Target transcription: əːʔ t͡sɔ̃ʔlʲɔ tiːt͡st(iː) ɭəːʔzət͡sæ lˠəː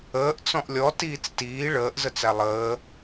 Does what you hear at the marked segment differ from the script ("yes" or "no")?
no